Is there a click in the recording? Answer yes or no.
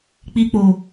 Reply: no